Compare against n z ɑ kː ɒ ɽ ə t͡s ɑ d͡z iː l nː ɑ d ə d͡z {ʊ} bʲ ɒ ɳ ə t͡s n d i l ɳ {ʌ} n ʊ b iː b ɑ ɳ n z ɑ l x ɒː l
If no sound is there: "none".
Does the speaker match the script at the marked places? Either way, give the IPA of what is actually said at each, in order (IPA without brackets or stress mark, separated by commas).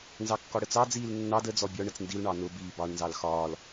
ɔ, ɑ